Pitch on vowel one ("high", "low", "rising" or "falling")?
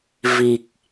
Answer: low